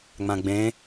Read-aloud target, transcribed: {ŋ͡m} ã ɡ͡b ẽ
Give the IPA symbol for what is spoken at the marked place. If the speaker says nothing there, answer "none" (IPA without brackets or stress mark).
ŋ͡m